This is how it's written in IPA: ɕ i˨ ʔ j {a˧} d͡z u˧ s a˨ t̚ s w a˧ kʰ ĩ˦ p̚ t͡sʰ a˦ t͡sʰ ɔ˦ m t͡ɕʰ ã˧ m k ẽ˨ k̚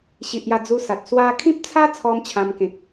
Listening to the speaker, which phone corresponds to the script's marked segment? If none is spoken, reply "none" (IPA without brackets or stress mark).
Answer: a˧